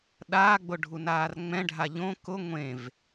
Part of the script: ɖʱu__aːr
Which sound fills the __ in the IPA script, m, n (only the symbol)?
n